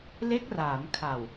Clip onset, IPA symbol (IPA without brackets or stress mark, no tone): l